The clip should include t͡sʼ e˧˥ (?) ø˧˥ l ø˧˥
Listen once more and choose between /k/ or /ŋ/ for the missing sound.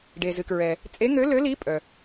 ŋ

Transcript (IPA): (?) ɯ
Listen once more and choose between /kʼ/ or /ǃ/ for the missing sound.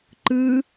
ǃ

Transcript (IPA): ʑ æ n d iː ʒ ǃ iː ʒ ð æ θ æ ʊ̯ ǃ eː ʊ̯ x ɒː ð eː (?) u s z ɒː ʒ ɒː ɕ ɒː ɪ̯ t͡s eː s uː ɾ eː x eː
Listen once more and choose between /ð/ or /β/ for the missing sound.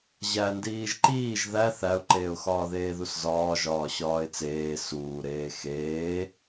ð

